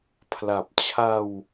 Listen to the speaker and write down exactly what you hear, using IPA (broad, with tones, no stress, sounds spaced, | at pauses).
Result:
pʰ l a˨˩ p̚ t͡ɕʰ a˧ w